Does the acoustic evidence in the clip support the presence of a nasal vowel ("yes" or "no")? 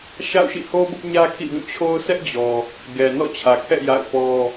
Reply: yes